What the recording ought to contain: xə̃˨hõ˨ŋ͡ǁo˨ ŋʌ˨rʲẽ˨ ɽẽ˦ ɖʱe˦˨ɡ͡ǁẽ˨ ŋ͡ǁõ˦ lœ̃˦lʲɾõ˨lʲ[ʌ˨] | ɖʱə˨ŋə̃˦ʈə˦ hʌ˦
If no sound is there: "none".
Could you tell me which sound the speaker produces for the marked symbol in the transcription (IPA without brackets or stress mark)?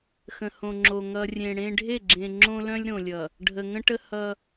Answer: ʌ˨